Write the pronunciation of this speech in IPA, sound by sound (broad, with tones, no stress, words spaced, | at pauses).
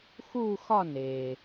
xu˥˧xɒ˥˧ne˩